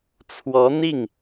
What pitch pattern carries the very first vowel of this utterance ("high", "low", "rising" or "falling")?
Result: rising